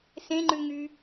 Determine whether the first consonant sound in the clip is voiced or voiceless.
voiceless